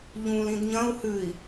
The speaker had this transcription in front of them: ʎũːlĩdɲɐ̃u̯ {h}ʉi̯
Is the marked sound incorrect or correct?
correct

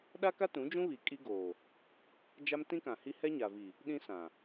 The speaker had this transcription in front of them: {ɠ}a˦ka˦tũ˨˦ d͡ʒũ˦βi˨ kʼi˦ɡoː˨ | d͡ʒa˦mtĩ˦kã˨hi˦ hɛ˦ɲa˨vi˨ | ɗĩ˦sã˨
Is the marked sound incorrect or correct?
incorrect: ɗ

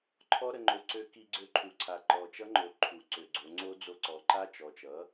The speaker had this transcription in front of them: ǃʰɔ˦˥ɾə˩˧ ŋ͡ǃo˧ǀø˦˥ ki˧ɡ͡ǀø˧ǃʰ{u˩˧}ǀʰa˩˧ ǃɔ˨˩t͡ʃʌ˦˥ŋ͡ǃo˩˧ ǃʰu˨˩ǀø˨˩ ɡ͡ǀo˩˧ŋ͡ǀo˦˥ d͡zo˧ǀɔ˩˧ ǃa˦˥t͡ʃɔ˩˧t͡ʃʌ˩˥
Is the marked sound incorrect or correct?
correct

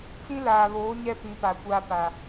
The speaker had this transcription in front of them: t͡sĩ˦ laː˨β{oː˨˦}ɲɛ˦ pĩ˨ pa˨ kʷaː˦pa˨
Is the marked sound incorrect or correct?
correct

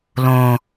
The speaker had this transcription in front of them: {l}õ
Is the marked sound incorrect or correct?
correct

